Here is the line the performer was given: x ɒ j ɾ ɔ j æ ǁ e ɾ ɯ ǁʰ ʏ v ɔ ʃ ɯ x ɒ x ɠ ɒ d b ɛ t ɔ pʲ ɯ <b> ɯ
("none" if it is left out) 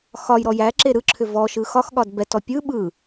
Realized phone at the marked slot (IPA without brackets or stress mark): ɓ